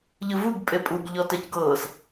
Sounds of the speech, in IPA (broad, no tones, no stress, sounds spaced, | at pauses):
ʎ ɯ v u ɡ pʼ e pʼ u ɡ ʎ ɔ t ɛ c ɡ ɤː s